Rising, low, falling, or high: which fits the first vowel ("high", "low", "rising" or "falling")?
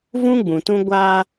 high